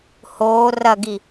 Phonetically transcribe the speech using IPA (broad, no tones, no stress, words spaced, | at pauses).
hoː rɐɡi